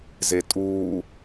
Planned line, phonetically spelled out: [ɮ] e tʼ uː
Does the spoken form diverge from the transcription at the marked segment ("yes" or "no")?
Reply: yes